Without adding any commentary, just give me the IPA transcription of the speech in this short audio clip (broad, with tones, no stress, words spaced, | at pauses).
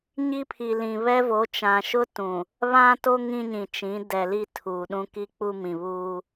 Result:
ɲi˦ pʰi˨lĩ˨βɛ˦vo˨˦ t͡ʃã˨ʃʊ˦tũ˨ | βã˦to˦ ŋĩ˦ɲĩ˨t͡ʃĩ˨˦ dɛ˨li˦˨ tʰuː˨ɗũ˦ki˦k͡pu˦ mĩ˨βuː˦